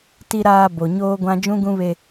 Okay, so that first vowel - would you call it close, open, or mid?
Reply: close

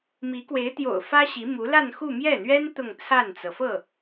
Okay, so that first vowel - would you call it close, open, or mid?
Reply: close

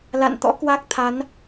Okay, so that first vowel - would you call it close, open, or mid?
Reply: open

